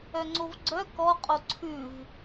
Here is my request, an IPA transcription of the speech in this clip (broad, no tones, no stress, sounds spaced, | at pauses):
œ ŋ͡ǀ o v ɡ͡ǀ œ k ɔ qʼ o ǀʰ ʉ v